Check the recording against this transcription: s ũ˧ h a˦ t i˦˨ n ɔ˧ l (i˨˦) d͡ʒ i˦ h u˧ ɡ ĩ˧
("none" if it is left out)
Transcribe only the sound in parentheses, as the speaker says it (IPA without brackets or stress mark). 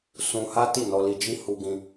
i˧